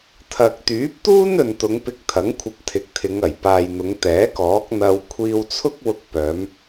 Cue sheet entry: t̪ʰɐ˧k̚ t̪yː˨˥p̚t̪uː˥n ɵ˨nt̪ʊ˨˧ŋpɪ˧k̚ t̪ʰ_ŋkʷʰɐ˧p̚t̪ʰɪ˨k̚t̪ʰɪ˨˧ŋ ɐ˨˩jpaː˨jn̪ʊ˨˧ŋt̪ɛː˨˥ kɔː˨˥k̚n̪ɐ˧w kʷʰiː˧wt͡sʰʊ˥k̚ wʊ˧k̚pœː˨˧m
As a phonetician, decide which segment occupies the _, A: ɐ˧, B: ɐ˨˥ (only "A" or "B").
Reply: B